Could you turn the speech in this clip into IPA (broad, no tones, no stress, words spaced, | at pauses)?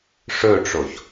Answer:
ʂɵʈ͡ʂoç